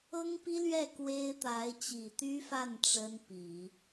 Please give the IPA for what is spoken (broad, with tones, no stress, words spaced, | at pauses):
ɤ˥ŋpi˥lɥɛ˥˩ kwe˥ɪ̯t̪a˧˥ɪ̯ t͡ɕi˨˩t̪y˥fa˥˩n ʈ͡ʂə˥npi˨˩˦